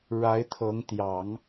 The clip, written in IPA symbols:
ɻa˧˥ɪ̯t̪ʰɤ˧˥ŋ t̪jɑ˨˩˦ŋ

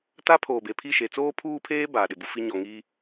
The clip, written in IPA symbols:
ta˦pʰoː˨be˨pʰi˦˨ ʃe˨t͡soː˦pʰuː˦pʰeː˦ baː˨ɗɪ˨bu˦fi˦ ɲɔ˨ŋiː˦

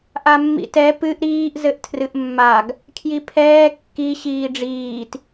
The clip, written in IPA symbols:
ʔamːḭtɛ pɨʔ ɾiːʔ zɘʔtʰrɨʔmːaɡ | kʰjipʰɛː kːi ɕiːɖ͡ʐiːt

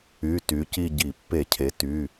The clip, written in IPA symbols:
y˩˧˩ ty˩˥ci˥˧ɟi˧˩˧ pːe˧˩˧cʰe˩˧ ty˩˧˩

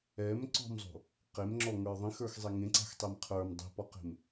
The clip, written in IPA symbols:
ɛm ǀɔ̤mzˤo̤ | qemŋ͡ǁɔŋə˞ ðˤĩxə˞xzˤe ŋẽǀa̤xtˤɛm qʰə˞m dˤi̤pɔqe̤m

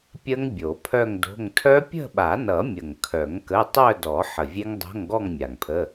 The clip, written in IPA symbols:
pʲə˦˥ŋ bʲo˨˩˦pʰœ˥˧ŋdo̤˧˥˧ŋ tʰœ˦˥pʲə̤˥˧ɓa˨˩˦nʌ˨˩˦ mʲə˨˩ŋkʰœ˨˩˦ŋ kə˧˥˧ tˤœ˥˧dɔ˨˩˦ ħə˨˩vʲe˦˥ŋdˤo̤˧˥˧ŋɡɔ˥˧ŋ mʲa˨˩ŋpʰə˧˥˧

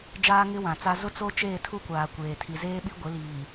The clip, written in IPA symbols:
d͡ʒaː˦ŋɪ˦wã˨t͡sa˦ zʊ˦t͡so˦ t͡ʃeː˦˨tʰu˦kʷaː˨ kʷeː˨tʰi˨zeː˦ ɓi˦ɡʷɪ˨˦liː˨

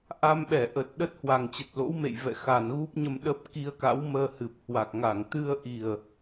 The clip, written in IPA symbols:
ʔa˧mɓɛ˧˩ʔə˨˩t̚ ɗə˦˥t̚ hwa˨˩ŋt͡ɕə˨˩t̚lo̰˧˥wmḛ˧˨j vɛ̰˧˨xa˨˩nɣu˦˥p̚ɲə˧m ɗə˦˥p̚ ki˧ə̯ka̰˧˥wməː˧hɨ˨˩p̚ hwa˨˩k̚ŋa˧˩ŋ t̪ɨ˧ə̯ʔi˨˩ə̯

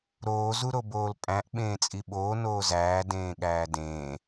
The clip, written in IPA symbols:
ɾoː zuɾoboːlpʼæ̃ʔ ɓẽːt͡sʼiɓoː noːzæː dẽːɠæːdẽː

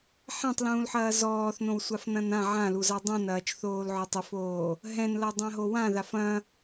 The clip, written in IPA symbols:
ħãtˤlũːlħɐː zɔːθnõwsʷafnɐ̃n ã ʕãluza dˤɛ̃nɐːt͡ʃθoːlʕɔtˤ ɘfoː | ɦɛ̃nlɐdˤãɦo wãðaf ɐ̃

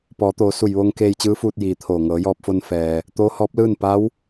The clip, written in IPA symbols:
pɔː˩˧t̪oː˩˧ su˧˩jʋoː˧ŋ keː˧jt͡ɕɯː˧˥fuː˧t̚ jiː˩t̪ʰoː˧˩ ŋɤː˩˧jɔː˧p̚fo˧n fɛː˩ | t̪oː˧˥hɔː˧˥p̚lɯː˥˨n pa˧˥w

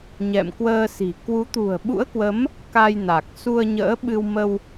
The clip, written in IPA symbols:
ɲɛ̰˧˨mkwəː˧si̤˨˩ kwu˨˦t̪ṳ˨˩ə̯ɓṵ˧˥ə̯kwə˨˦m | ka˧jna˨˩k̚ su˧ə̯ɲə̰ː˧˥ɓɨ˧wmə˧w

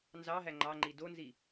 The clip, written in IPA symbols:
nzɑɦæ ŋ͡ǃɑŋ͡ǃi donzi

